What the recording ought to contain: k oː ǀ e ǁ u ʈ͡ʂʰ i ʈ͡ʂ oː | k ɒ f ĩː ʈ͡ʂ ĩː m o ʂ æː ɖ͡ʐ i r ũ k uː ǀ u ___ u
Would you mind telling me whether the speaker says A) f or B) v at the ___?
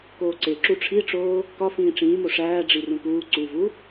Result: B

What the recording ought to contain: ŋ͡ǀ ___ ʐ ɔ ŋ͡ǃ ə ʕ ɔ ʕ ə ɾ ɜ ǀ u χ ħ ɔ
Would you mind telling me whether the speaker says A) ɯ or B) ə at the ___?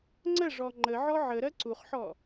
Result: B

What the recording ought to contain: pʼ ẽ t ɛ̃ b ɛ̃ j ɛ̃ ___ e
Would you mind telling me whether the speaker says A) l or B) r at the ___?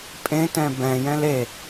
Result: A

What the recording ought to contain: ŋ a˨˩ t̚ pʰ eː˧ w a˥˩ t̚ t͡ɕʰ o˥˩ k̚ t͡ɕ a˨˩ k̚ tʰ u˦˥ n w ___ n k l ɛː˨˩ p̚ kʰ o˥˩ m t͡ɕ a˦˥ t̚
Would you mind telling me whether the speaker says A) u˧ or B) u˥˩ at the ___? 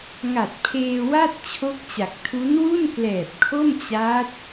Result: B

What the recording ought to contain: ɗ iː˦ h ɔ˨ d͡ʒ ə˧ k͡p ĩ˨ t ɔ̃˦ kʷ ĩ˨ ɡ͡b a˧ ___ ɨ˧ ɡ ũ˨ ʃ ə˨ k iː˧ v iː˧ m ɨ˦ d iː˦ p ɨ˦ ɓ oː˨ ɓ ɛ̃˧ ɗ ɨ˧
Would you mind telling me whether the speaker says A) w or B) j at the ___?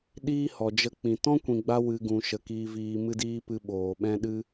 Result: A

